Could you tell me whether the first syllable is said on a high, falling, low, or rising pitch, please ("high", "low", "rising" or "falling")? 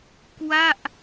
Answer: falling